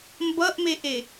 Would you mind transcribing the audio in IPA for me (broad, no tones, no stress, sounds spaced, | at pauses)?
m b ʌ ʔ m e ʔ e